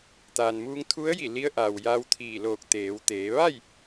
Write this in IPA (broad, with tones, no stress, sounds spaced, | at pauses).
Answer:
t̪ aː˩ n m uː˧ ŋ t̪ʰ u˧˥ ə̯ j i˧˩ l i˧ ə̯ ʔ a˩ w j a˧ w t̪ʰ iː˧˩ l oː˧˩ k̚ t̪ eː˩˧ w t̪ eː˩˧ ʋ a˥˨ j